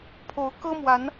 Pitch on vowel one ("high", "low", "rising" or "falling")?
rising